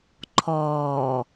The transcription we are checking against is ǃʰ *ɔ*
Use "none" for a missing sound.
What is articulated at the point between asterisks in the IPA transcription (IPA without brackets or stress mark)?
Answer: ɔː